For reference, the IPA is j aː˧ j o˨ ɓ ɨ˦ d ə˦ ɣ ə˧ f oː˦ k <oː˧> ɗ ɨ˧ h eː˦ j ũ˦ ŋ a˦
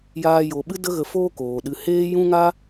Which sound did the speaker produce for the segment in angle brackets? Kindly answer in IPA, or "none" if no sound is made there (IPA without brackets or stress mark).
oː˨